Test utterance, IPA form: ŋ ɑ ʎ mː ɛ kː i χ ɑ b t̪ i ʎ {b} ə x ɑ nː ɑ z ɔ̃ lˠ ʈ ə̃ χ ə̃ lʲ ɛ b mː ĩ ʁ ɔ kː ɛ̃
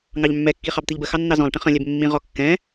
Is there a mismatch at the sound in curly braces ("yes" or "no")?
no